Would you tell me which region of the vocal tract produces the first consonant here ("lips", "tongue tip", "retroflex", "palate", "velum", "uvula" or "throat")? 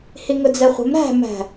throat